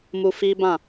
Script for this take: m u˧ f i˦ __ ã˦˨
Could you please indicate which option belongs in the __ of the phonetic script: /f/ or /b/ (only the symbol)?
b